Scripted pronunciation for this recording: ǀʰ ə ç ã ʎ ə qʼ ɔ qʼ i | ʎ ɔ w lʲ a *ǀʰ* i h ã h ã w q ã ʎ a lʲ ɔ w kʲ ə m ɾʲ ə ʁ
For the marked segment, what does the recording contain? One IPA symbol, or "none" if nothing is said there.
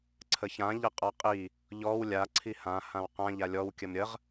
ǀʰ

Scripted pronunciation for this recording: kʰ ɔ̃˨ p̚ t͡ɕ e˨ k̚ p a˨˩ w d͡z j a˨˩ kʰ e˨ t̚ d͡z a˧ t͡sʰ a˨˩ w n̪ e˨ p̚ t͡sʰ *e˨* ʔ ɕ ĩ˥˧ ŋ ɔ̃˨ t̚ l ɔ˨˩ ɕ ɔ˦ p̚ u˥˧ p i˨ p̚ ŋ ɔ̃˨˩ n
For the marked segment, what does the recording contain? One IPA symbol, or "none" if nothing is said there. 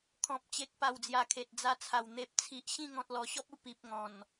i˨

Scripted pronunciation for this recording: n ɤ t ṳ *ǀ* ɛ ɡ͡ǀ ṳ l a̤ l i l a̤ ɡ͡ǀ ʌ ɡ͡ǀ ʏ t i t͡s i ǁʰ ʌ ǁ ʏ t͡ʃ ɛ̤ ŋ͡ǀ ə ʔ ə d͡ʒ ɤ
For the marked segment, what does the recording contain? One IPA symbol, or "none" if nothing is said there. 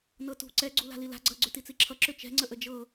ǀ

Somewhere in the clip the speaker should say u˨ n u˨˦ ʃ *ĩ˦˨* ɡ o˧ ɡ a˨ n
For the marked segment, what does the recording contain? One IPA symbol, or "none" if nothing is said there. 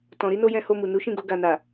ĩ˦˨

